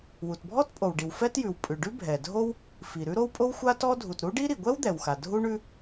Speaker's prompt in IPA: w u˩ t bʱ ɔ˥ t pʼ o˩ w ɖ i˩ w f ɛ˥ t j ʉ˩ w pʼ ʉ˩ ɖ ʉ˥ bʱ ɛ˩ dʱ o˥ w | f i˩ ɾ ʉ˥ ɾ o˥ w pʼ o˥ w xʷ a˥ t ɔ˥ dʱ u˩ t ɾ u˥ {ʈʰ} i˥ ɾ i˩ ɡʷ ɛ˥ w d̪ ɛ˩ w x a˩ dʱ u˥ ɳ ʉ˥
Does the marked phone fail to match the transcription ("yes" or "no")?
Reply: yes